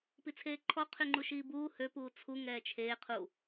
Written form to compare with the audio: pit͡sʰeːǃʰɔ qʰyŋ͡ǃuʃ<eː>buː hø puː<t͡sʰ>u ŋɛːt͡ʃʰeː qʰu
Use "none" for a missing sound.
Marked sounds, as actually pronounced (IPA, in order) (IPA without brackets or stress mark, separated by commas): iː, t͡sʰ